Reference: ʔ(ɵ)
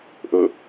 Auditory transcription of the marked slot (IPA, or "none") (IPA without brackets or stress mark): ɵ